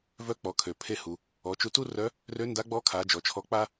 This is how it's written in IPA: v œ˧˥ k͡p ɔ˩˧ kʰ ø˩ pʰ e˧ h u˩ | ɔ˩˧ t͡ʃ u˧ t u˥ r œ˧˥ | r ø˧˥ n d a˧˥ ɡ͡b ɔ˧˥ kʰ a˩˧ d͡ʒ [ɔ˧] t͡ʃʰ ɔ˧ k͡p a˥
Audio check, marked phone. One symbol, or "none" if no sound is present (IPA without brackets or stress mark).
ɔ˩˧